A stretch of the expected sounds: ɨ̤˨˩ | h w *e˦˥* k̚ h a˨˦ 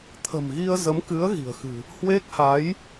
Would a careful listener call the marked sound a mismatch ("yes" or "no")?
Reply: no